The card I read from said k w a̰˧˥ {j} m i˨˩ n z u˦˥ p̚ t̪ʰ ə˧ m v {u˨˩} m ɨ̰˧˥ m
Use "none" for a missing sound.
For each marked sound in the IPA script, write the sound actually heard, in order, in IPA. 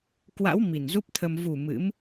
w, u˨˩

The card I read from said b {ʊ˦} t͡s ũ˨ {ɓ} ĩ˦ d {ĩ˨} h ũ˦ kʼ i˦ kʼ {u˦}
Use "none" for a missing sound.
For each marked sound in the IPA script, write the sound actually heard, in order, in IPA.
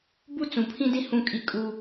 u˦, pʰ, ĩ˦, u˦

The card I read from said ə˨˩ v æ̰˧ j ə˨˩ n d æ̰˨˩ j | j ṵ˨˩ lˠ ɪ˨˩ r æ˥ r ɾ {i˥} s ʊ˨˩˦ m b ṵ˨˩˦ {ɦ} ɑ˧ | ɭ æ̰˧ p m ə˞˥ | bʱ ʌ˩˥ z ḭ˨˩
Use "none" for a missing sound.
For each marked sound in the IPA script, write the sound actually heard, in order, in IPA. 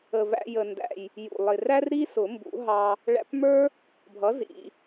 i˥, ɦ

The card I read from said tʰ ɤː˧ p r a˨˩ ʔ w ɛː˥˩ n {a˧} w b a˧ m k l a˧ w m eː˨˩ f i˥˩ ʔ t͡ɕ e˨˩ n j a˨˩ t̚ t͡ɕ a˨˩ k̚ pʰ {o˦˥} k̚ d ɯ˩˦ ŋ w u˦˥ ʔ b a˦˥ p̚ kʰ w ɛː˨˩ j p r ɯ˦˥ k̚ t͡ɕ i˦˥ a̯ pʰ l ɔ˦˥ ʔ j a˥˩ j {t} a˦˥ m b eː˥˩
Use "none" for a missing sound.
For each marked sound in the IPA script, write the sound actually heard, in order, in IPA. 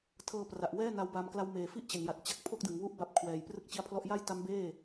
a˦˥, o˥˩, t

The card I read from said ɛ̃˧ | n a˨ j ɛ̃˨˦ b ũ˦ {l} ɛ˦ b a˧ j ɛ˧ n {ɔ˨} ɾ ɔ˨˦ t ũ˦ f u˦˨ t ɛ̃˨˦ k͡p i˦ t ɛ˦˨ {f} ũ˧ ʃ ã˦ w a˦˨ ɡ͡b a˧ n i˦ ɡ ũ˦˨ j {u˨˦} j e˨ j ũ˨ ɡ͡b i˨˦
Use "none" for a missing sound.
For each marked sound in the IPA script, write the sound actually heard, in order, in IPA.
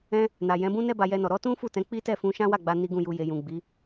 n, ɔ˨, f, u˧

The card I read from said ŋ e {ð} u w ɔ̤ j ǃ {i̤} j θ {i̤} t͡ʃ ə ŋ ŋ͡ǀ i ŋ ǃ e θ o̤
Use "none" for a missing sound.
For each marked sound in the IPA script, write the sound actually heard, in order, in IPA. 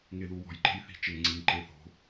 ð, e̤, i̤

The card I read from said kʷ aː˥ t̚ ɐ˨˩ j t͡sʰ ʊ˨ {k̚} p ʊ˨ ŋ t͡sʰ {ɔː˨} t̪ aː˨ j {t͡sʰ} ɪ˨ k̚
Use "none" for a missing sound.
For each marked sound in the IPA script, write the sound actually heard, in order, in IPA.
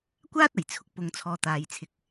k̚, ɔː˨, t͡sʰ

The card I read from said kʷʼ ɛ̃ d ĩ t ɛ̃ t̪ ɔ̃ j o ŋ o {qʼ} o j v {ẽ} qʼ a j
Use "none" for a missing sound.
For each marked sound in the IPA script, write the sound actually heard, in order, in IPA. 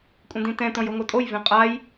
tʼ, ẽ

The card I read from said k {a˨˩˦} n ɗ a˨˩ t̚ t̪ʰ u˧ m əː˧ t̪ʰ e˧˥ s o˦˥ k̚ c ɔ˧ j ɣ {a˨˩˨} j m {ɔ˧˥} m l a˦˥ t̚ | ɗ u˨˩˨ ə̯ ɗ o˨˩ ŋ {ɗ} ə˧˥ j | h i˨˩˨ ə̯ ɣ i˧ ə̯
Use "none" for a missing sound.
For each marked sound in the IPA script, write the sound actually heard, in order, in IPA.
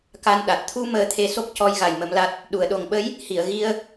a˧, a˨˩, ə˧˥, ɓ

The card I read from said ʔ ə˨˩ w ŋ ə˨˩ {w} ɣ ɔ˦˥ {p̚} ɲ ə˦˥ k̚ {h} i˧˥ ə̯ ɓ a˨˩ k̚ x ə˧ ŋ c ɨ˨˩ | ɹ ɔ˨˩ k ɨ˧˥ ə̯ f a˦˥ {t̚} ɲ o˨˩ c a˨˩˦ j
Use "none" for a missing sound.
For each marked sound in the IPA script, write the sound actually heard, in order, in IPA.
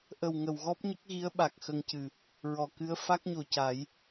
w, p̚, ɣ, k̚

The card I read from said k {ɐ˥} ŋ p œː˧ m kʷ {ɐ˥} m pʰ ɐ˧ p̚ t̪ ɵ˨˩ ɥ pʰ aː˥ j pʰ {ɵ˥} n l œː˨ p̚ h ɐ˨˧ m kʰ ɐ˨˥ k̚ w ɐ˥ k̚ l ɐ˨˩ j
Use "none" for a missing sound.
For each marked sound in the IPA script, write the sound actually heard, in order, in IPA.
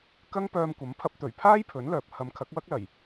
ɐ˥, ɐ˨˥, ɵ˨˥

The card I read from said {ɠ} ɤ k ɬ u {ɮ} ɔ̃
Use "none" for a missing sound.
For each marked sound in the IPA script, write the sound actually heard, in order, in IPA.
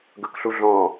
ɡ, ɮ

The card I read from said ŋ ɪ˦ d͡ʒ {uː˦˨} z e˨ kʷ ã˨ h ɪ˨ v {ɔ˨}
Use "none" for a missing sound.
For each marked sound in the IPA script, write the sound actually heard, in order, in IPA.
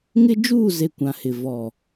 uː˦˨, ɔ˨

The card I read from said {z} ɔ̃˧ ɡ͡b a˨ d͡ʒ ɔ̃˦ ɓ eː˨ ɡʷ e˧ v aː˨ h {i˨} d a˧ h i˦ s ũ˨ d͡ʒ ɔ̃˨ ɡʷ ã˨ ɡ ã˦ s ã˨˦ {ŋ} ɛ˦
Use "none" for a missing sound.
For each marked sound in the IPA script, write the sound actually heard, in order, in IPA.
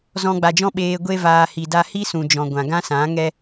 z, i˨, ŋ

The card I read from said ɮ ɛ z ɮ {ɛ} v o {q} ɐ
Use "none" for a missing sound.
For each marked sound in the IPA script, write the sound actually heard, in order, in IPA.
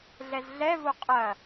ɛ, qʼ

